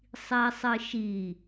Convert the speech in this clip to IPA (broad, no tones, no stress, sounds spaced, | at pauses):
sˤ i sˤ ɨ ʃ i